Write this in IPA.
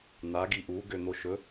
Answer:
n̪ a ɡ i ʔ u ɡ ø n̪ o ʃ ɵ

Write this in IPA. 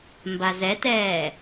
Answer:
m b a z ɛ t ɛː

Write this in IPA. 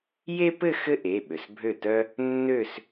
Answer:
j e˥ p ɘ˥˧ x ɘ˥˧ ʔ e˩˧˩ ɓ ø˩ s bʱ ø˥˩ t œ˥ | nː ø˥˧ s

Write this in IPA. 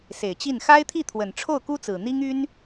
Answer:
s e˨˩ ɪ̯ t͡ɕ i˥˩ n x a˥ ɪ̯ t̪ʰ i˥˩ t̪ʰ w ə˨˩ n ʈ͡ʂʰ o˥˩ ʊ̯ k u˥ t͡s ɹ̩˨˩ n̪ i˥ ŋ y˥ n

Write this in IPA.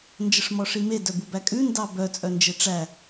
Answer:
n d͡ʒ ə ʂ m ɔ ʂ i m e d œ b u b æ kʼ ʉ n d ɑ b œ t͡sʼ œ n d͡ʒ e ʈ͡ʂ æ

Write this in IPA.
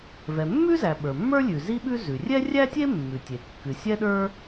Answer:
v ɛ˩ mː ʉ˥ z æ˩ ɓ ə˞˩ mː ə˞˥ lʲ ʉ˩ z i˥ ɓ ʉ˥ z ʉ˩ rʲ ɛ˥ rʲ æ˥ tʲ e˥ mː ʉ˩ tʲ e˩ kː ɨ˩ sʲ ɛ˥ ɗ ə˞˥

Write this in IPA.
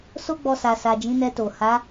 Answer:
s o˦ ɡ͡b ɔ˧ s a˨ s a˨ d͡ʒ ĩ˨˦ n ɛ˧ t o˨ h a˨˦

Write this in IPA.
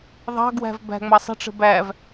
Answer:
ðˤ ɑ̤ ɡ w æ̤ v b æ̤ ŋ͡m ɑ sˤ ə̤ ʈ͡ʂ ə̤ b æ v

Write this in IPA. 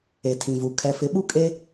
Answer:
e˨ tʰ ĩ˨ v u˨ kʰ ɛ˨ f ɪ˨˦ ɓ u˦ kʼ e˦

